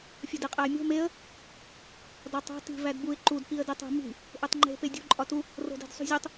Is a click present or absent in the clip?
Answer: present